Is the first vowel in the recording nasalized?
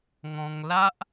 yes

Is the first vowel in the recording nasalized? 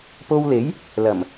no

